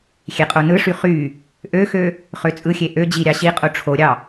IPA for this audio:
xʲ e qʼ o n ɯ ʂ y χ y | ʔ ø x ø | χ ø t͡sʼ ɯ xʲ e ʔ ø d͡ʑ i ɾʲ ɑ ɕ i qʼ o ʈ͡ʂʰ o ɾʲ ɑ

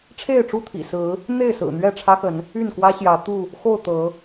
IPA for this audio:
ʈ͡ʂʰ e˥˨ ɪ̯ ʈ͡ʂ u˥˨ t̪ʰ ḭ˨˩ s ɹ̩˨˦ | n̪ e˥˨ ɪ̯ s ɹ̩˨˩ n̪ ɥ ɛ˥˨ ʈ͡ʂʰ ä˦ x ə˨˦ n | y˥˨ n k w ä˦ ɕ j ä˨˦ t̪ u˥˨ | x o˥˨ ʊ̯ t̪ ɤ˨˦

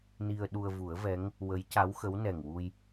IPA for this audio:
n i˧ ə̯ ɗ u˧ ə̯ v u˨˩˦ ə̯ v ɛ˧˥ ŋ | w ə˧˥ j c a˧˥ w x ə˧˥ w n ɛ˨˩ ŋ w u˧ j

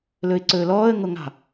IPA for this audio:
l ɵ ɪ̯ ǀ ɵː l ɔː ə̯ ŋ o ŋ ɑ̤

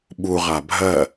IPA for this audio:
ɓ u ʁ a bʱ ɜ

